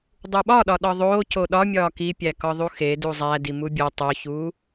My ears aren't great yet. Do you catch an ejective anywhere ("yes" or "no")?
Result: no